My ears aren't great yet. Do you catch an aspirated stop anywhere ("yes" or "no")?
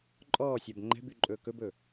no